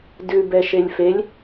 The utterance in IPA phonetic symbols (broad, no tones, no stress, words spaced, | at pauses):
dʉbɛʃelʲ felʲ